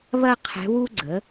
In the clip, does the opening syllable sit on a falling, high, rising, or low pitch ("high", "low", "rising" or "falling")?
high